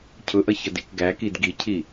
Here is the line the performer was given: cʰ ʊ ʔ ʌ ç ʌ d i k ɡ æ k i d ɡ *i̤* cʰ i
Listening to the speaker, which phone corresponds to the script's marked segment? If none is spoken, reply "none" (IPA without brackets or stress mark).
i